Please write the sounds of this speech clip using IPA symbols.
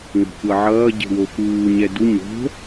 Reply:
ŋo̤kʷʌ ʕʌː ɟe̤woxuː ɲɛdu ɲo̤

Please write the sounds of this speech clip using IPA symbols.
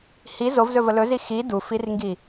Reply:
hi zovzɵvə lɵzi xi dufirŋɡi

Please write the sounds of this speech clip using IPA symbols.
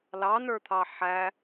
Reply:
lɑnə˞t̪ʰɑ ħæ

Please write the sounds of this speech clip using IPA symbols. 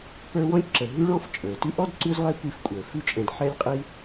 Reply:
pə˞˦wɔ̃˥lʲǁə˨ ɦʉ˦ɭɔ̃˦f t͡ʃʼə˞˩ tʉ˦ʔɔ˥dǀʉ˦zlˠɛ˦ kʷi˦fkʷʼə˞˩ fʉ˦t͡ʃʼɛ̃˨dħɛ˦lʲ qʼi˦

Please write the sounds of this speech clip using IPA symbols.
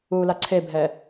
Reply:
ula ǀʰebʱɛ

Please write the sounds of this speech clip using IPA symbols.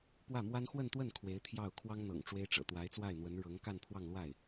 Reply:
pwä˥˩mwa˥n xwə˥˧nt̪wə˥˩n kʰwe˧˥ɪ̯t̪ʰjɑ˥˩ʊ̯ kʰwɑ˥ŋn̪ɤ̰˨˩ŋ ʈ͡ʂwe˥ɪ̯ʈ͡ʂɤ̰˨˩ t̪wa˧˥ɪ̯t͡swa˥˩ɪ̯n̪wə˧˥n ɻɤ˧˥ŋ ka˥˧npʰwɑ˥˧ŋlwa˥˩ɪ̯

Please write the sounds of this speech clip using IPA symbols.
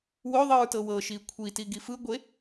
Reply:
wo ðˤɯɹtɤwɤʃi kʷʰiti ɡifɯɡʷe

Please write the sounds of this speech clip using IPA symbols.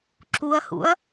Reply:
ǁuɐ̯hṵɐ̯

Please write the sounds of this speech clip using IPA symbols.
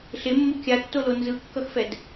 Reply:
ɬemːu kʲatːolo nzɯkːʌxfɛd

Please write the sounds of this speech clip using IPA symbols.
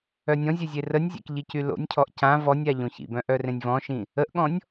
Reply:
œnʲɔ̃zʲœ zʲerənʲzʲɛ̰k ʎicylo̰nʲcʰɔʔ cã vɔnʲa ʎõçḭbœ̃ ʔœrẽnʲvɔ̃ʃĩ | əʔɠɔ̃nʲ

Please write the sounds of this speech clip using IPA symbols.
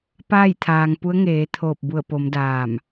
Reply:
paː˥˨jt̪ʰaː˩ŋpu˧˥ə̯ ŋeː˩˧t̪ʰoː˧˩p̚ bu˧˩ə̯po˩˧m daː˧˩m

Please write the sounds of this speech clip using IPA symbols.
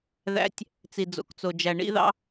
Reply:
ðæ̰˧˥tʲ | t͡si˩d͡zo̰˩kt͡so˩d͡ʒæ˩ ɳḭ˧ðɑ̰˧

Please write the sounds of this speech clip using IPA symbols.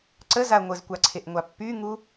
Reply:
ǀəzaɐ̯ ŋʷəzkʷaǀʰeʔŋʷa pːyŋu

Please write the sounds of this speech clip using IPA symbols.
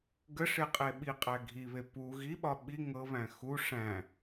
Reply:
ɡəʂeqʼe ɓiqʼæ ɡʱiβe pu ɣiɓɒ ɓi ŋɤβæ̃ xu ʂæ̃

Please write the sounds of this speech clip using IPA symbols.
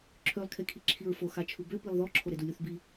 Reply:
ǁʰølˠkʰekʰi ǁʰiɹfo xat͡ʃʰubø pilˠðɔǁʰo ɾedulʲuθbi

